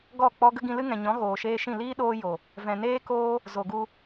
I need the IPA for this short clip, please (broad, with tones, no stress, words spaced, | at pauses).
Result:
ɡɔ˦˨ k͡pɔ˦ ɡə˦ɡĩ˧ lɨ˦ŋɛ̃˨ɲɔ̃˨˦ ɣoː˨ʃeː˧ʃĩ˦˨ liː˦ɗoː˧ jo˨ | vɛ̃˨ neː˦koː˦ | zo˨ɡu˧